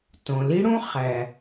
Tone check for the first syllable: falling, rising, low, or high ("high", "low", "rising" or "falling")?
low